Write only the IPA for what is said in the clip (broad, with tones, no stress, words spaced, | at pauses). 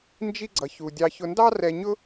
nd͡ʒi˥ɡ͡ǀʌ˧çu˧ dʲɑ˧çʊ˧ndɑ˥ rɛ˧ɲʊ˥